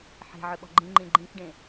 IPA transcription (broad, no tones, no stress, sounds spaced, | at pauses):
ħ e̤ ʕ ʏ ɓ ɔ̤ ɡ͡ǃ ĩ ŋ͡ǃ ĩ ɡ͡ǃ ĩ k ɖ ẽ